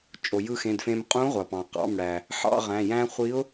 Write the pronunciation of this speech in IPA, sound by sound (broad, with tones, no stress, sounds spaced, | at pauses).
t͡ʃʼ o˩ j ɯ˧ x ẽ˩˧˩ d f ẽ˧ m qʼ ũ˧˥ ʁʷ ɑ˩ p ɑ̃˩ q ɑ̰˩˧˩ m ɽ æ˩ | ħ ɑ̰˥˧ ʁ æ̃˩˧˩ j æ̃˥ χʷ i˧˥ ʊ̯